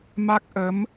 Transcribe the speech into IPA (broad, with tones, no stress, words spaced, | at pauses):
ma˦˥k̚ʔə˨˦m